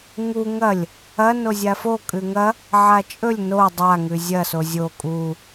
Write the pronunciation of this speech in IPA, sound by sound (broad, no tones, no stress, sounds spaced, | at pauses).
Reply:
ŋ u ŋ ɐ lʲ | ɐ n o zʲ a f o kʼ ʉ ŋ ɐ | ʕ a t͡ʃʼ ɵ lʲ n o dˤ a ŋ ʉ zʲ ɐ s o zʲ o kʼ u